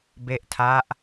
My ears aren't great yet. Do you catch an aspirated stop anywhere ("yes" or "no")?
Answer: yes